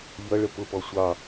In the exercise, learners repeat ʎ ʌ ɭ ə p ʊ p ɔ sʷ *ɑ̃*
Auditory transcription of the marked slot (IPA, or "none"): ɑ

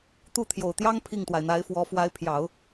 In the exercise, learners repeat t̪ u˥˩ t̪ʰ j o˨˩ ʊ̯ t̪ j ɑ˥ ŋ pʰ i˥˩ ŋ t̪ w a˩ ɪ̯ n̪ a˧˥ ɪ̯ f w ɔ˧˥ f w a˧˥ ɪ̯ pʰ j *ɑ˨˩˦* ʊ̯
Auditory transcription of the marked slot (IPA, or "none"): ɑ˨˩˦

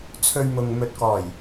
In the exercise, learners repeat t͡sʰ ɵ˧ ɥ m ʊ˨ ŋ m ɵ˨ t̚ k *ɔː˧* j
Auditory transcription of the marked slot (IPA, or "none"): ɔː˨˩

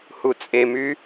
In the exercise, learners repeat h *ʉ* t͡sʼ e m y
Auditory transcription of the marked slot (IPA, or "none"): u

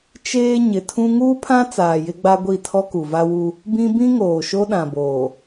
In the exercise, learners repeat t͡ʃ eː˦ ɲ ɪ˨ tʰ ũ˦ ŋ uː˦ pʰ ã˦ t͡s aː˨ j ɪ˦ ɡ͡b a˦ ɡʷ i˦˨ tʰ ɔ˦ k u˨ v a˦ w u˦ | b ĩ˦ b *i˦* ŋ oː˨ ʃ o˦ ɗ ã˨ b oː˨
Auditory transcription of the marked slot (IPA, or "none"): ĩ˦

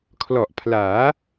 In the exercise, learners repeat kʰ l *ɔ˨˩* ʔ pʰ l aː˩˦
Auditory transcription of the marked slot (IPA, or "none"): ɔ˨˩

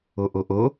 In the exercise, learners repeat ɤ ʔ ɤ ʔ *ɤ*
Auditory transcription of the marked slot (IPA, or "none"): ɤ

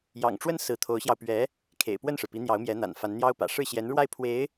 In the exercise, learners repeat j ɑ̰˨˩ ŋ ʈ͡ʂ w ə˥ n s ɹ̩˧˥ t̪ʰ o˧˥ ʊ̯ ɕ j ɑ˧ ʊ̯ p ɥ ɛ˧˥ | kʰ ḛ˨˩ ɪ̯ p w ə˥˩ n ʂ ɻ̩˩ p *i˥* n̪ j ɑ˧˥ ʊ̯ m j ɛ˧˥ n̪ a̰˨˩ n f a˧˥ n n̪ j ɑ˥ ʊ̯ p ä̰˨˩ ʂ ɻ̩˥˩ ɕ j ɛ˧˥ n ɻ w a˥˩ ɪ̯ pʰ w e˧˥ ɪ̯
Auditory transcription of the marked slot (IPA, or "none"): i˧˥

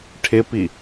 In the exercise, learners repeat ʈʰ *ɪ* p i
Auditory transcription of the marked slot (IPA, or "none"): ɪ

